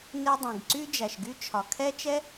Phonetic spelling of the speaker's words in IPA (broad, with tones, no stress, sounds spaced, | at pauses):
n e˥ dˤ ẽ˩ ɡ ǀ y˥ d͡ʒ æ˩ ʃ ɡ y˥ t͡ʃʰ ɒ˩ kʰ ɛ˥ t͡ʃ ɛ˥